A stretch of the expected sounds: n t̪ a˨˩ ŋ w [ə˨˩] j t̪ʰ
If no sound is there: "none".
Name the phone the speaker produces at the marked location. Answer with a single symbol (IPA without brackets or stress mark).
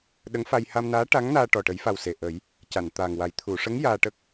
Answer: a˨˩